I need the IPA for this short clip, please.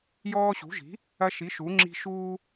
jɔː˦ɕṳ˨˥ʒi̤˨˥ | ɐ˦ʃi˨˥ʃu˨˥ŋ͡ǁi̤˦ ʃuː˦

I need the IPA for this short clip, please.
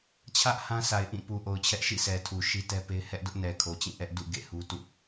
t͡ɕʰä˦ʔ hã˦sa˨ɪ̯ʔĩ˦˨ pu˨ʔo˨ʊ̯t͡ɕʰɛ˦ʔ ʃḭ˦˨sɛ˨tʰu˨ ʃi˦tɛ˦pe˦ɪ̯ hɛ˦ʔdʊ˦ʔnɛ˨ kʰo˨t͡ɕĩ˦˨ʔɛ˦ʔ dṵ˦˨ ɡḛ˦˨hu˦tṵ˦˨

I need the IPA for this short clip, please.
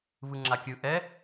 βɯŋ͡ǁakʲɯ ʔɛ

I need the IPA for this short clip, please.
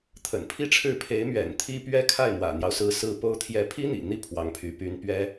t̪ʰə̰˨˩npʰi˥ʈ͡ʂʰɻ̩˥˩ pʰe˧˥ɪ̯mɥɛ̰˨˩n t̪ʰi˥pɥɛ˥ kʰa˥˩ɪ̯mwä̰˨˩n̪jɑ˦ʊ̯sɹ̩˧˥ sɹ̩˥po˥ʊ̯ t̪ʰjɛ˧˥pʰi˥ n̪ḭ˨˩n̪i˥ pʰwɑ˧˥ŋpʰy˧˥ py˧˥npɥɛ˥

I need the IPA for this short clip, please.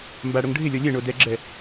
mbaɽoŋ ɖʱɪlʲɔ lʲɛ ɳodɛɡ͡ǁɛ

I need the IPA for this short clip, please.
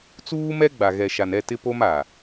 t͡suː˦mɛ˦ɡ͡ba˨ ɣɛ˨ʃa˨nɛ˦˨ tɪ˦po˦ma˨

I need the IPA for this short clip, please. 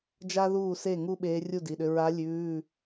d͡ʒa˥ ðuː˥˩se˥˩ ŋu˥ ɓeː˧˥rʲu˥˩di˩˧˩ɗʏ˧ ɹa˧˥ lʲʉː˩˧˩

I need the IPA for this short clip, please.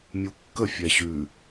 mʲukːə fʲɛɕʉ

